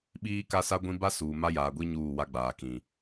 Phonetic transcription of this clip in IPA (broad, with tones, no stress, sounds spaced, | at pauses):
ɓ iː˦ k a˦ s a˦ ɡʷ ĩ˦ b a˦ s uː˨ m a˦ j aː˨ ɡʷ i˦ ɲ uː˦˨ w a˦ ɡ͡b aː˨ k ĩ˨